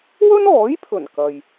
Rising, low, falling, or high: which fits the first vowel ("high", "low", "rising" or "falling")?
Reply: high